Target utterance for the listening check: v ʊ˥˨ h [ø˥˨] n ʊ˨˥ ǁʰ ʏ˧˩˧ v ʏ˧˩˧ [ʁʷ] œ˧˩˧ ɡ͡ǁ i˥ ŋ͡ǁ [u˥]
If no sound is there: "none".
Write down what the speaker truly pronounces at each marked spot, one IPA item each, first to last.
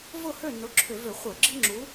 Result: ø˥˨, χʷ, u˨˥

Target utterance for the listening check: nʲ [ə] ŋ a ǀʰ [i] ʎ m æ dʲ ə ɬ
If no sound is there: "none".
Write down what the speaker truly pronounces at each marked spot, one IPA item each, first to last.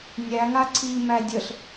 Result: æ, i

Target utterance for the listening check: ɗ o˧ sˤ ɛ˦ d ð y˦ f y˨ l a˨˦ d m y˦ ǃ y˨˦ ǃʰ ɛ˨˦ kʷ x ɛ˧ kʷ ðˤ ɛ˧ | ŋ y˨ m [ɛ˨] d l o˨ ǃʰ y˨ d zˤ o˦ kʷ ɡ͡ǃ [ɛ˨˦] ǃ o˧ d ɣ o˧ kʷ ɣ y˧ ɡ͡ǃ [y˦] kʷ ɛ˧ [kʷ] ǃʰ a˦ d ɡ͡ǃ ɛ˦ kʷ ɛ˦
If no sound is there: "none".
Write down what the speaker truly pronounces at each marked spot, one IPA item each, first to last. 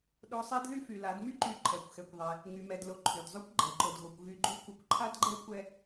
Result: ɛ˨, ɛ˨˦, y˦, kʷ

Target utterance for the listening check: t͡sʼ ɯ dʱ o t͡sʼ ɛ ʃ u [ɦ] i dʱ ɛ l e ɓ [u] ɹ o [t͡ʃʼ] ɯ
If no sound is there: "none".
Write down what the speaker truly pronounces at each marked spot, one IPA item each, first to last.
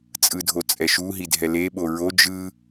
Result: ɦ, o, d͡ʒ

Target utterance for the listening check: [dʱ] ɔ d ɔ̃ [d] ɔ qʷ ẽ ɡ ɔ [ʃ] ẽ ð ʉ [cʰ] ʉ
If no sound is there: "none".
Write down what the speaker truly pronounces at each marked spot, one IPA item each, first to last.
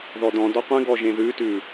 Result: ð, d, ʒ, t

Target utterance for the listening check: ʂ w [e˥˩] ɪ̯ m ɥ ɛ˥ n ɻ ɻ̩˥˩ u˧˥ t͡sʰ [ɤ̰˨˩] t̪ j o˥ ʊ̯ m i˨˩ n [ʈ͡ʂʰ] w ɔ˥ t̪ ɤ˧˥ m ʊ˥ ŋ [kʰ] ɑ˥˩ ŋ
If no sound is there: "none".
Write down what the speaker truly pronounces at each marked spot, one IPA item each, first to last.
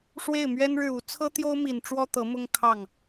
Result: e˥˩, ɤ˥, ʈ͡ʂ, kʰ

